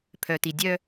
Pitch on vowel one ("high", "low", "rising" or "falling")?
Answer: low